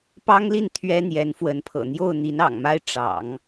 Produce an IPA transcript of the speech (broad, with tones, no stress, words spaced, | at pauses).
pɑ˥ŋli˥˩n t̪ʰɥɛ˥n̪jɛ˧˥nfwə˧˥npʰɤ̰˨˩ n̪jo˥˩ʊ̯ n̪i˧˥nɑ̰˨˩ŋma˥ɪ̯ ʈ͡ʂɑ̰˨˩˦ŋ